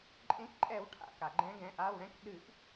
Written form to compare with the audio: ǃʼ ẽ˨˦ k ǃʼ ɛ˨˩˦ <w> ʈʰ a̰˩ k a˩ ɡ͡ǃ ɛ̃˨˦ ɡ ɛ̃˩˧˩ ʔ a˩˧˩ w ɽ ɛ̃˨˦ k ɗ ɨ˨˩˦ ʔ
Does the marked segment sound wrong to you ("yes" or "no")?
no